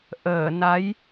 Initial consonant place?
glottal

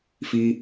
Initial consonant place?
labial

